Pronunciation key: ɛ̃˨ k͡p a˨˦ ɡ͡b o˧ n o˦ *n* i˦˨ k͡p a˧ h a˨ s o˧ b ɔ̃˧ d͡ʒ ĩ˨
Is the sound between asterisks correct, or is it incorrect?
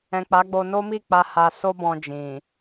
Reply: incorrect